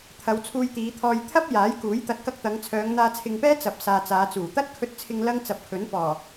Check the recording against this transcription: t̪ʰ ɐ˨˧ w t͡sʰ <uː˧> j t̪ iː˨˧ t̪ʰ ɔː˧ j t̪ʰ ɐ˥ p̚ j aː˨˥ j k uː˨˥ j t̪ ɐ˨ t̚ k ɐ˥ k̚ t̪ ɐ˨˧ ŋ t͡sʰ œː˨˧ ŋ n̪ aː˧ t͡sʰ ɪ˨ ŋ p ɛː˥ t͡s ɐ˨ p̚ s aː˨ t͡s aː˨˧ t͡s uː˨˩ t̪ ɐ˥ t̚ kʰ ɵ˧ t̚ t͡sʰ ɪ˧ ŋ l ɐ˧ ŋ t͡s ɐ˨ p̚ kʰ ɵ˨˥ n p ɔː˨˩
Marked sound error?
no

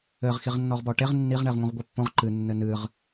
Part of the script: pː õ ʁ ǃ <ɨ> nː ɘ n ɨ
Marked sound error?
no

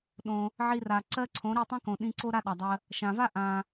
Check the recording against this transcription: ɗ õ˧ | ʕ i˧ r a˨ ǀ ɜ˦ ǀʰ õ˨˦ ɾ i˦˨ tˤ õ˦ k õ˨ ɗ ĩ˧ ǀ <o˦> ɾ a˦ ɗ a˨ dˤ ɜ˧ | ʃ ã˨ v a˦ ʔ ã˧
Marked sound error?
no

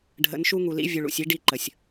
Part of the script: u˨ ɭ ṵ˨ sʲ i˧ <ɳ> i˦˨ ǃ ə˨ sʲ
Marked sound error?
yes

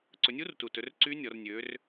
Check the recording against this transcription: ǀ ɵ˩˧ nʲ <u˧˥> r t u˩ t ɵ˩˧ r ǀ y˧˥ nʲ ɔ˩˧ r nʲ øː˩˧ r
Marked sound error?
no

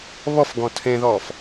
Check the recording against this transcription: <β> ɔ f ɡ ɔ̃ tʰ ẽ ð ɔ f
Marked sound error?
no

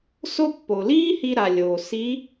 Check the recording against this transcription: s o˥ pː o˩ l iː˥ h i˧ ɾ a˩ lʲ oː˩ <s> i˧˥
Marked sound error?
no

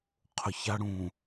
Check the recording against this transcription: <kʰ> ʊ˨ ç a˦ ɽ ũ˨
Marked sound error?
yes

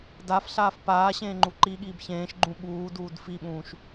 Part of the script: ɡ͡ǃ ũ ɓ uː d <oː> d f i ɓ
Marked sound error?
yes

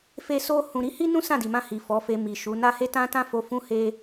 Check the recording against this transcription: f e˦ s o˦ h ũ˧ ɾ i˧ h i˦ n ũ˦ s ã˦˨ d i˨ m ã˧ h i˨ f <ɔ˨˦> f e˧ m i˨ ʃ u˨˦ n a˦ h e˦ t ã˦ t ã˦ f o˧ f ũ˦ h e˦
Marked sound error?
no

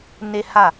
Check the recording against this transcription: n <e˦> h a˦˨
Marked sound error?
no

